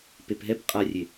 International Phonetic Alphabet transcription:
pepɦɛp qʼarʲe

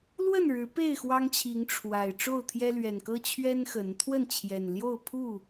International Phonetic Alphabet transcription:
lwə˥˨nɻɻ̩˨˦ pe˥˨ɪ̯ xwɑ˦ŋt͡ɕʰi˨˦ŋ ʈ͡ʂʰwa˨˩ɪ̯ ʈ͡ʂo˥˨ʊ̯t̪ʰjɛ˦ lɥɛ˨˩nkɤ˦ t͡ɕʰɥɛ˦n xə˨˦n t̪ʰwə˥˨nt͡ɕʰjɛ˨˩nljo˥˨ʊ̯ pʰu˥˨

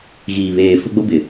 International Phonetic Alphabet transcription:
ɣiː˨βeː˨ fʊ˦ɡ͡bo˦bɪ˨

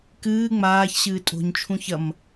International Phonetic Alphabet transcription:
kɨː ŋ͡maːçɕɨː tʼo̤ɲt͡ʃʰũç ɐm

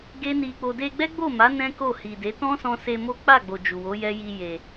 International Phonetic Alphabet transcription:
ɡe˦ni˧k͡po˧ de˧ɡ͡bɛ˦ɡ͡bo˦˨ma˨˦ nɛ̃˦ko˦˨ hi˨de˨˦ tɔ̃˦sɔ̃˧se˧ mo˦ k͡pa˦˨ɡ͡bo˨ d͡ʒu˨wo˨˦jɛ˦ ji˧je˨

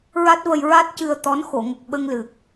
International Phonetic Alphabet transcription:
ɹa˦˥t̚və˧j ɹa˦˥t̚ cɨ˧ə̯t̪ɔ˧˥n xo˨˩˨ŋə˨˩k̚ɓə˧ŋlɨ˨˩k̚

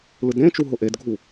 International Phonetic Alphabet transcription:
lɯdɾẽt͡ʃu ɦʊʔedɡʱu

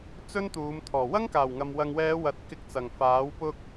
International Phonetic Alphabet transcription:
t͡sɵ˥nt̪uː˨˧mt̪ʰɔː˨˩ wɐ˥ŋkaː˨˩wŋɐ˨m wɐ˨ŋwɛː˨˧ wɐ˨˥t̚kɪ˧k̚t͡sɐ˨˩ŋ faː˨˥wpʊ˥k̚

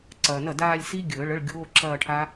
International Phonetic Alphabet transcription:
ǀɐː˨nɐ˥˩daː˥˧lʲ si˦˥ɡʲəː˨˩˦ ɭə˧˥˧ɭ ɡʲoː˧˥˧ǁɐː˥˧ʈʰa˦˥

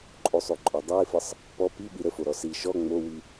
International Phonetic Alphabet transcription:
ǃʼosˤoǃʼɔ dˤɯɪ̯fəsˤ | pɔ piɓi ɾəfoɾɔ si ʃɔ ŋ͡mowi

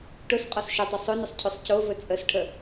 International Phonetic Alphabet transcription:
ʈʊs qʼɔsʃɵtˤʊ sˤɵnʊsˤ cʰɵsˤcovɵ t͡sʼəsʈʰə

